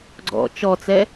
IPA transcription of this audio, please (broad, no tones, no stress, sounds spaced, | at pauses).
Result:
ɡ͡ǀ ɔ̰ t͡ʃ ɔ t͡s ɛ